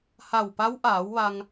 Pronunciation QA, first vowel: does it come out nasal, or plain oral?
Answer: oral